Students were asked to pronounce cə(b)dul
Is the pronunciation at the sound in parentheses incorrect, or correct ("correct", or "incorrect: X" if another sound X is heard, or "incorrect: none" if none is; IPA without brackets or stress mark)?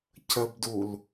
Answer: correct